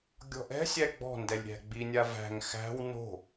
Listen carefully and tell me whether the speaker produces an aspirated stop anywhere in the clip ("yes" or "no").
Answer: no